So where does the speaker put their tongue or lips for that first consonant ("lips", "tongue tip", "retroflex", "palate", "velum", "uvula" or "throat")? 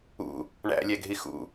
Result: retroflex